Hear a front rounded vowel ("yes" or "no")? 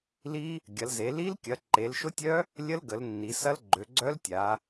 yes